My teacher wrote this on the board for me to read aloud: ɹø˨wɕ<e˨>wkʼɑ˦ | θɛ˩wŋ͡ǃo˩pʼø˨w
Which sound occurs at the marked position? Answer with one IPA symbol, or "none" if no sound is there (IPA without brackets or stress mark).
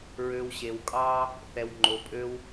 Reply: e˨